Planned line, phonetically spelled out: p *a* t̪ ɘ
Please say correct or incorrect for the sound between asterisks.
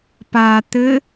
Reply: correct